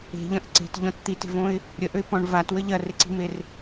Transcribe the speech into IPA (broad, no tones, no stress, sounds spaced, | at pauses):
e̤ ʎ ɐ̃ ʔ ǀ e̤ t ʎ ɔ̃ t t̪ i t e̤ v õ ɪ̯ | ɾʲ ə ʔ ø ɪ̯ p ɔ̃ ɳ v a t w ə ʎ ɐ r ɪ ǀ i̤ m e r